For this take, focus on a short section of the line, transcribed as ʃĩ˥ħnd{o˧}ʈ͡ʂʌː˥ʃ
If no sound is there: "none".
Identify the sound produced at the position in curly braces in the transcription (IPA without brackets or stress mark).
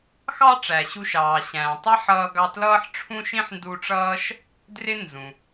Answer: u˧